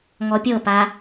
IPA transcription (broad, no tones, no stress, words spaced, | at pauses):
ŋɔpʲɤpa